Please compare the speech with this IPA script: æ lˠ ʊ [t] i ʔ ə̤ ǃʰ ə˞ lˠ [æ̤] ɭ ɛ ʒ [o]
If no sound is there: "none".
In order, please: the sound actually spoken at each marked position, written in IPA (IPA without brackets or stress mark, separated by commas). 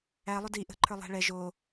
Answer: d, æ̤, o